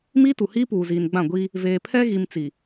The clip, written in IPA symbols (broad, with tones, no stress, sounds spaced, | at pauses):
m iː˦ t u˨ h iː˦ p uː˨ z iː˨ n ɡ͡b ã˦˨ ɡʷ i˦ | v eː˨ pʰ ɛ˦ ɣ i˨ m t͡s i˨